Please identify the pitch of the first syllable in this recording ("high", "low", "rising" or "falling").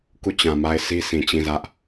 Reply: falling